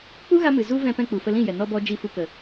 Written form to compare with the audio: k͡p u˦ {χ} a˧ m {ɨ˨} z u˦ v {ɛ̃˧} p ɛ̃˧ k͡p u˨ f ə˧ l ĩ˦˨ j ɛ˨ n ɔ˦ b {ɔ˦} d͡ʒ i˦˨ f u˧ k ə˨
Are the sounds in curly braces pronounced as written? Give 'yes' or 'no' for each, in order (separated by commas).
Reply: no, yes, yes, yes